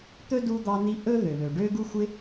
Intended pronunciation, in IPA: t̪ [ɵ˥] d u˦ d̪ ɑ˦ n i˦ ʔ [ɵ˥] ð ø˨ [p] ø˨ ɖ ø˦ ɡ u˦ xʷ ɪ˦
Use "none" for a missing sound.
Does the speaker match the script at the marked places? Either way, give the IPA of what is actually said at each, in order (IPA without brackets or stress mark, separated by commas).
ɵ˥, ɵ˥, β